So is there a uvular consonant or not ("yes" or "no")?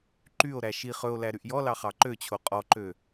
yes